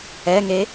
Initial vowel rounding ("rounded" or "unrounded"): unrounded